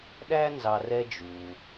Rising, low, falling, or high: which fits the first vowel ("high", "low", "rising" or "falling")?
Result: high